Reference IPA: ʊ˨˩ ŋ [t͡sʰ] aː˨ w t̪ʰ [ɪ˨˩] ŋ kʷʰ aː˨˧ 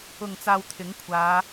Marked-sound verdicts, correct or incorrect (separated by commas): incorrect, incorrect